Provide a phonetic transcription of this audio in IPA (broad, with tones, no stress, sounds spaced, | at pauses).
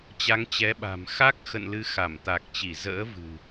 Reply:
t͡ɕ a˨˦ ŋ t͡ɕ ɛ˨˦ ɓ a̤˨˩ m x a˦˥ k̚ x ə̰˧˨ n l ɨ˨˦ x a˧˩ m t̪ a˨˩ k̚ t͡ɕ i˧˩ z ə̰ː˧˥ v ɨ̤˨˩